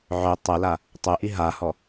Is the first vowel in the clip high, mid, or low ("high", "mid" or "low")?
mid